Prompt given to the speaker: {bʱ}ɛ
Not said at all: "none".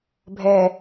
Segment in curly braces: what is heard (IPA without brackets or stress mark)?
bʱ